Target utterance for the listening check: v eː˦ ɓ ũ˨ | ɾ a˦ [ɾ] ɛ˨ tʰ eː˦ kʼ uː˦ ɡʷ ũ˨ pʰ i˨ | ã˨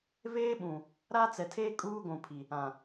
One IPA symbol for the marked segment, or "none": t͡s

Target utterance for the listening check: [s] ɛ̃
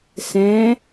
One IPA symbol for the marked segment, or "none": s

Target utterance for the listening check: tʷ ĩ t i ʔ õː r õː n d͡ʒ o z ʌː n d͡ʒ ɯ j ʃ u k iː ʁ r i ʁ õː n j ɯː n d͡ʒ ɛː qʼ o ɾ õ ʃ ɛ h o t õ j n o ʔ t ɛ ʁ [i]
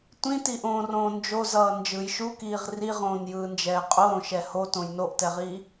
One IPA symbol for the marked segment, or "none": iː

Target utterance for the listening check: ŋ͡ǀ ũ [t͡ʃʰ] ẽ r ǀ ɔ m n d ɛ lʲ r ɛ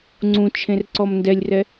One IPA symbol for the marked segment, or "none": t͡ʃʰ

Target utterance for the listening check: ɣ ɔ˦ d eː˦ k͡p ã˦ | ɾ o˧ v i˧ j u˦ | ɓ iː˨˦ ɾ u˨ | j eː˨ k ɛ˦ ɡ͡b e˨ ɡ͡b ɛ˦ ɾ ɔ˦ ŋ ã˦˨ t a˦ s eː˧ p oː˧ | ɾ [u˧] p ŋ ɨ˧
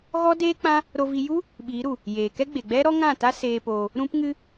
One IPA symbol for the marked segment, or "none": ũ˧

